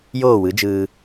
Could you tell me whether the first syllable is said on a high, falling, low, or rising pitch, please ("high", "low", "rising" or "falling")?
falling